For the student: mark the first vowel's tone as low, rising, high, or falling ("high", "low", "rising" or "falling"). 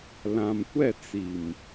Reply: low